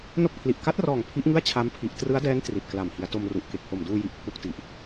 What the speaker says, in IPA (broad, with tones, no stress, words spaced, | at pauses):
no˥˩k̚pʰli˨˩ʔ ka˦˥t̚rɔː˨˩ŋ pʰi˦˥ʔŋɯ˥˩a̯ t͡ɕʰa˦˥mpʰi˨˩ʔ trɯ˦˥a̯dɛː˦˥n tri˨˩t̚kla˨˩m hi˩˦a̯ to˧mru˨˩ʔ ke˨˩k̚ho˨˩m duː˧ji˨˩ʔ pʰu˦˥k̚ti˨˩ʔ